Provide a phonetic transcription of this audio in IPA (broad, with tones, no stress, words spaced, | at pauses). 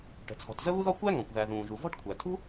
ʈə̤˩t͡sʰɔ̤˩tzə˥ βu˥ðɔ˥ kʷæ˥ŋɔ̃˩kʷ ðæ˩ ðũː˩ʒu˩vɔ̤˥ʈkʷʰæ˩ tʰṳ˥